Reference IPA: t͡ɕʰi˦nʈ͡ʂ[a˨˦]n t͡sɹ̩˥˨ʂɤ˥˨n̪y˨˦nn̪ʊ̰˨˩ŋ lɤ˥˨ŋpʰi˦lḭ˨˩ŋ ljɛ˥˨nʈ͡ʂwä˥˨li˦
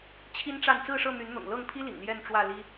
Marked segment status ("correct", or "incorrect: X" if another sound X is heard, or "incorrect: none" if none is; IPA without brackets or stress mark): incorrect: a˥˨